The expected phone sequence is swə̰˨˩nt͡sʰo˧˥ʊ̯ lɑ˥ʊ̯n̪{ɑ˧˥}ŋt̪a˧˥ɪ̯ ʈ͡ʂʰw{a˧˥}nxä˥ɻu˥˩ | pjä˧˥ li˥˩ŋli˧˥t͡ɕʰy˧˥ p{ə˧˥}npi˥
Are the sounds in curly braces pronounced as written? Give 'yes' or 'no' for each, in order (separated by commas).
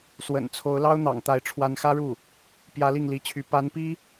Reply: no, yes, no